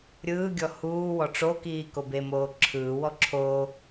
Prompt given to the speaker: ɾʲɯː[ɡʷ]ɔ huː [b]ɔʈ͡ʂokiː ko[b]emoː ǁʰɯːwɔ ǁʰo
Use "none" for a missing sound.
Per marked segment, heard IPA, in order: ɡʲ, w, b

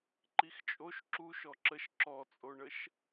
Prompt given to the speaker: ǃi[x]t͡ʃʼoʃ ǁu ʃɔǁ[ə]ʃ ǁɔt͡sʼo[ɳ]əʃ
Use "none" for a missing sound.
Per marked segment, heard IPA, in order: x, ə, ɳ

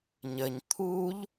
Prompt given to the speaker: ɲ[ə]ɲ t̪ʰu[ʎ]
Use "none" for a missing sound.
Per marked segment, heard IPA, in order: ə, ʎ

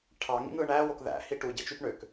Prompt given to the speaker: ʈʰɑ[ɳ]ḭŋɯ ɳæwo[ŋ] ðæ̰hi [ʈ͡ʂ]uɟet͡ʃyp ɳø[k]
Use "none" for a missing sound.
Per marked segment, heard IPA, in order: ŋ, k, ʈ, k

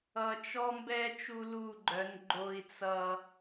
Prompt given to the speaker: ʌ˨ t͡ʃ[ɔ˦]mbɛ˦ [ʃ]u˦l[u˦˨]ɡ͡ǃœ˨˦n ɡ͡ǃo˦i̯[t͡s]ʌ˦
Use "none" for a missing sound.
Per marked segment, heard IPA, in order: ɔ˦, t͡ʃ, u˦˨, t͡s

